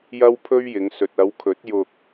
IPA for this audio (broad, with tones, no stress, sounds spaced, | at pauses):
j ɐ˥ w pʰ ɵ˥ ɥ j ɪ˨˧ ŋ s ɵ˨ t̚ ɐ˨˧ w kʰ ɵ˨˥ t̚ j ʊ˧ k̚